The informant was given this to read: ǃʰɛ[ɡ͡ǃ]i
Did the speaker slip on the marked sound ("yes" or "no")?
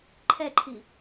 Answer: yes